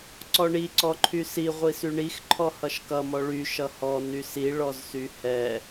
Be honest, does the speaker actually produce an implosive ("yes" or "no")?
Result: no